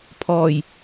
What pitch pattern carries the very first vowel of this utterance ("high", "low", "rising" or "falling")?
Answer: low